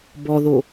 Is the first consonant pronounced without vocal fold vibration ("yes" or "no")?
no